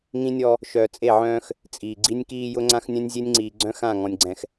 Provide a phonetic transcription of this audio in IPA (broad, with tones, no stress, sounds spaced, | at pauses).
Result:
ŋ ĩ˦ nʲ ɔ˦ | ʃ œ˨ t͡sʼ e˦˨ ʕ œ̃ː˦ x | t͡sʼ iː˨ ɡ͡ǀ i˦ nʲ k iː˦ j ʊ˦ ŋ͡ǀ ã˦ x nʲ œ̃˦ nʲ zʲ e˦ nʲ ŋ͡ǀ iː˨ ɡ͡ǀ œ̃˦ x ã˦˨ ŋ ɔ̃˨ nʲ ɡ͡ǀ ɛ̃˨ x